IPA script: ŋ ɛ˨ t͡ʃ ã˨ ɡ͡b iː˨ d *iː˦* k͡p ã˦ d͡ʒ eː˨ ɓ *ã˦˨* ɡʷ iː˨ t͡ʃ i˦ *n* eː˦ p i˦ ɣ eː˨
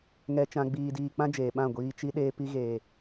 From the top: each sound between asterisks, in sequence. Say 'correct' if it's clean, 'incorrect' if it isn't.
incorrect, correct, incorrect

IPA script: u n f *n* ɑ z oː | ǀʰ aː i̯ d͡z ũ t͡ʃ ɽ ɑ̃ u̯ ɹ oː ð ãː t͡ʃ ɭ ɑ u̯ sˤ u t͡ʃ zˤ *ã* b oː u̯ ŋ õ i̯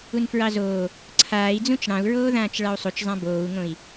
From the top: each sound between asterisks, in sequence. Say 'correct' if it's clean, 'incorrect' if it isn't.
incorrect, correct

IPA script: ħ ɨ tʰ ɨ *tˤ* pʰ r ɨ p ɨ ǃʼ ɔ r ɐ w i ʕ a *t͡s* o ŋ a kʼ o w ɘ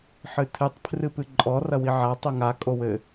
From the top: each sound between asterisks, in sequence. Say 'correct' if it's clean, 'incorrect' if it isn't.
correct, incorrect

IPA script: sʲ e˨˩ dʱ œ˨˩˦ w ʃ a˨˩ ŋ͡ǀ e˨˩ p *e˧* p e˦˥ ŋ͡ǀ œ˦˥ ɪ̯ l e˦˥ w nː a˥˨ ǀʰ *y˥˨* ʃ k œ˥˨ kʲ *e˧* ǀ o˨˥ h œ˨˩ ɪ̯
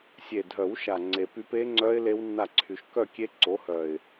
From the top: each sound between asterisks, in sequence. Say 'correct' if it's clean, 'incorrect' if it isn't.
incorrect, incorrect, incorrect

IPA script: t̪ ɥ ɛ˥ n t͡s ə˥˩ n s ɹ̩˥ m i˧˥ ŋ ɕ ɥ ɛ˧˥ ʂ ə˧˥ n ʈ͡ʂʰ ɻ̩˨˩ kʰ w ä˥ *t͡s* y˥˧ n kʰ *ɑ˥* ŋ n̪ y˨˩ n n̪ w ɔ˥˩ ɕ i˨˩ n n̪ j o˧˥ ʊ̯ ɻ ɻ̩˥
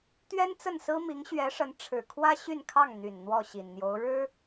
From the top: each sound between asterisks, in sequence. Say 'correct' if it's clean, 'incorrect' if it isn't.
incorrect, incorrect

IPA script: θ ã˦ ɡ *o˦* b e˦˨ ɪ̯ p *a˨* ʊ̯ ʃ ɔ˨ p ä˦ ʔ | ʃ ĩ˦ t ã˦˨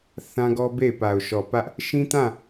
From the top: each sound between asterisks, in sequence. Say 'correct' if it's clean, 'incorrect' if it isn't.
incorrect, correct

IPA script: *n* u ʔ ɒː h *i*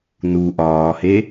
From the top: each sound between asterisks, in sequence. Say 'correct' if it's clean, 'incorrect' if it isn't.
correct, incorrect

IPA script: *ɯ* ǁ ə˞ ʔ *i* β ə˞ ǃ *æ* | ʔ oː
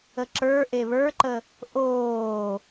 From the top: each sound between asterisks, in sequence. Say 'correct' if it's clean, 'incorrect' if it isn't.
incorrect, incorrect, incorrect

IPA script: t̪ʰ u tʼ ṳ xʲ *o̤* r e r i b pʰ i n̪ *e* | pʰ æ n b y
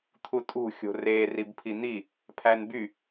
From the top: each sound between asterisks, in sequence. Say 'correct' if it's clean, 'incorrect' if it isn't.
correct, incorrect

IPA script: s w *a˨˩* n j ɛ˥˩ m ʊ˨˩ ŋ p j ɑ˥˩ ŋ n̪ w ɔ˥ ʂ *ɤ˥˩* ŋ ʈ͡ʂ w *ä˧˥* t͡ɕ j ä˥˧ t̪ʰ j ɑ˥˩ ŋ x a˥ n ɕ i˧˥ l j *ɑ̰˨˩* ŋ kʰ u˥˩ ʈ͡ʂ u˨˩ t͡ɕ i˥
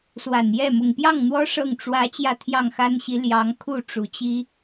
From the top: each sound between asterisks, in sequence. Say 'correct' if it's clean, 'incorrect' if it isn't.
correct, correct, correct, incorrect

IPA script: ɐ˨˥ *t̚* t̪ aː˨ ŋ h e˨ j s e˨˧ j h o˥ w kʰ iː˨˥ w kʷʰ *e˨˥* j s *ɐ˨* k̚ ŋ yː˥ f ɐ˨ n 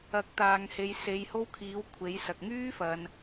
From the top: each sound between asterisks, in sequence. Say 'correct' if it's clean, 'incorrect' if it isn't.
incorrect, correct, correct

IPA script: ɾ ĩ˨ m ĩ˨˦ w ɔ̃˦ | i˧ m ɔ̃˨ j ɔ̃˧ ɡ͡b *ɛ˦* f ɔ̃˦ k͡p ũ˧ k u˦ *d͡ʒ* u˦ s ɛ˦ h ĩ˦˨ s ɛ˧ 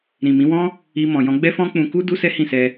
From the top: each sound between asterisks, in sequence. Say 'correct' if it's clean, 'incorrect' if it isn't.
correct, incorrect

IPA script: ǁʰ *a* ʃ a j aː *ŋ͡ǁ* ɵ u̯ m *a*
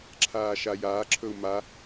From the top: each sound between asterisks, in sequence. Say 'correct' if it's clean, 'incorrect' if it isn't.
incorrect, incorrect, correct

